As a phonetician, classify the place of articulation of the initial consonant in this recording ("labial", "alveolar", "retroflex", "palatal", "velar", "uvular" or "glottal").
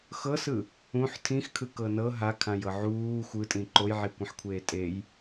velar